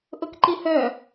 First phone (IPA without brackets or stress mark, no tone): ʔ